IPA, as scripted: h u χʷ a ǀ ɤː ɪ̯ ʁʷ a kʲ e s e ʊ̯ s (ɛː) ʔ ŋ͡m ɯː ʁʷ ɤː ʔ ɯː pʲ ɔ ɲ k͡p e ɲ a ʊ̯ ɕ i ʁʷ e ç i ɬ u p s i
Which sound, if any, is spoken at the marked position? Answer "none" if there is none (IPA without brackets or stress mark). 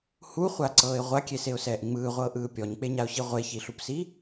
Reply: ɛː